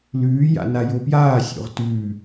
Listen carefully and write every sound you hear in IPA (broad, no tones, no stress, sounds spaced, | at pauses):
l ʉː j a̰ n a j o p j aː sʲ o̰ ʁ t ʉː